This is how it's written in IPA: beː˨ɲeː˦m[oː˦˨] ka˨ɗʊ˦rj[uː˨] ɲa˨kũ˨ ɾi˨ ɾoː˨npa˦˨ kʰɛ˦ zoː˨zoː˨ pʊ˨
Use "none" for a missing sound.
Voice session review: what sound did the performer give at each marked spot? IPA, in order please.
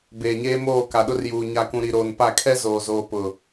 oː˦˨, uː˨

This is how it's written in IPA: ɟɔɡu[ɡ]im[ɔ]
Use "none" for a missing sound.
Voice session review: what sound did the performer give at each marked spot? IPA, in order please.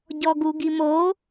ɡ, o

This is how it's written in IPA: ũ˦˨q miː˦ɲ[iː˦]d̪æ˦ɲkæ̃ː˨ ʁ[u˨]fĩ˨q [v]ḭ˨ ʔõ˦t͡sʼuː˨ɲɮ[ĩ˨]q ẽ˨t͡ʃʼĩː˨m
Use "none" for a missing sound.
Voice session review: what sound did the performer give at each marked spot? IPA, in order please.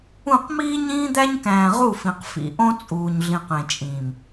ĩː˦, u˦˨, f, ĩ˨

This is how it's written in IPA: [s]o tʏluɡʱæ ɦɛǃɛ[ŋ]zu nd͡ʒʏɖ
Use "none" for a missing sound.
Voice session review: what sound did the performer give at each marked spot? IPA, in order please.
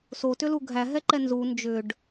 s, n

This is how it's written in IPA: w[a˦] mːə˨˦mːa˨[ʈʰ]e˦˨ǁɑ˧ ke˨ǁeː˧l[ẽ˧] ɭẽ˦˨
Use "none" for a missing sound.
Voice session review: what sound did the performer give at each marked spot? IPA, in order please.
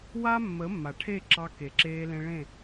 a˦, ʈʰ, ẽ˧

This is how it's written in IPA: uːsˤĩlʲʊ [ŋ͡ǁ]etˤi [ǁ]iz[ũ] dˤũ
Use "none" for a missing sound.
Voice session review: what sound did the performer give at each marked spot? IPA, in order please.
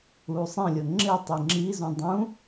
ŋ͡ǁ, ŋ͡ǁ, ũ

